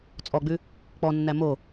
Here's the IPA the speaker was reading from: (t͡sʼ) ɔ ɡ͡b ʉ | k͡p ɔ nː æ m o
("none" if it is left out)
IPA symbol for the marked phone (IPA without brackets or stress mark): t͡sʼ